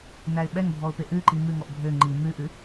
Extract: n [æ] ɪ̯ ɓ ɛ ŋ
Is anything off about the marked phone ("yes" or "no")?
no